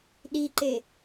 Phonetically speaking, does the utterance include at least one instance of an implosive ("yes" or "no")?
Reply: yes